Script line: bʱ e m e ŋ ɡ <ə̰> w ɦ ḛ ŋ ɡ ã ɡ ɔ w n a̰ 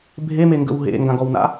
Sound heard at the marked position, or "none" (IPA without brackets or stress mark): ə̰